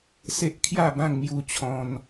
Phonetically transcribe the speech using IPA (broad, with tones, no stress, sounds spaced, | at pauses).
s e˦ ʔ kʰ j a˥˧ b ã˥˧ ŋ m j u˥˧ t͡ɕʰ ɔ̃˦ n